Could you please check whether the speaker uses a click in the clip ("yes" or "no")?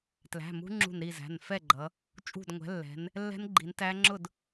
yes